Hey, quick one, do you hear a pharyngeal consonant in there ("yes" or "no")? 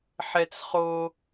yes